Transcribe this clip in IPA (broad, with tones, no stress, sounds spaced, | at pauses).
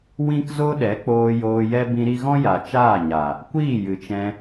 w ĩ˦ k z o˦ ɗ ɛ˨˦ k͡p oː˧ j oː˧ j ɛ˦ b ĩ˧ ɾ i˧ ɣ ɔ̃˦ j a˨ t͡ʃ aː˦˨ ɲ a˨ | kʷ iː˦˨ j ɨ˨ t͡ʃ ɛ̃˧